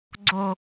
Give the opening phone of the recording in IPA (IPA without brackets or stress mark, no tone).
ɡ͡ǀ